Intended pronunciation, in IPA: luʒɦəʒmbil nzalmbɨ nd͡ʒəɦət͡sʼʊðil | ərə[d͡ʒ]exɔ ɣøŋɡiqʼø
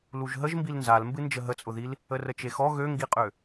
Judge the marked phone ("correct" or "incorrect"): incorrect